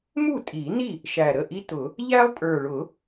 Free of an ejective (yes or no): no